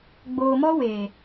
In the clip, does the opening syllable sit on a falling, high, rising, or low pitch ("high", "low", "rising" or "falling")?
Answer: low